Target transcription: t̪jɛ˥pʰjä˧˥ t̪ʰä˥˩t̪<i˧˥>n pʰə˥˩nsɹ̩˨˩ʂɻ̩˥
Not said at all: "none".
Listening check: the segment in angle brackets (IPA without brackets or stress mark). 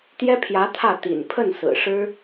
ḭ˨˩